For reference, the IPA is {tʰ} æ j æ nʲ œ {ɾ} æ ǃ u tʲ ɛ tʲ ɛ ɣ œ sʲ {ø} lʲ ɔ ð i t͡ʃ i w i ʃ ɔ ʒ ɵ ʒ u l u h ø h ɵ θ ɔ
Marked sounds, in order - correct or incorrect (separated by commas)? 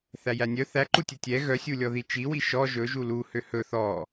incorrect, incorrect, incorrect